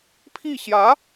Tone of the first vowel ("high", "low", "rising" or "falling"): falling